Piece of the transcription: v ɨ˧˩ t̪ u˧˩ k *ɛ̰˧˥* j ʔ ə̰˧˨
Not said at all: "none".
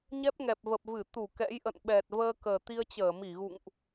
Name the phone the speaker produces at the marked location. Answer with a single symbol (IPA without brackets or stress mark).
ɛ̰˧˥